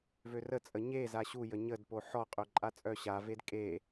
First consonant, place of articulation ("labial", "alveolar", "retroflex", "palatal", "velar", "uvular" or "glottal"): labial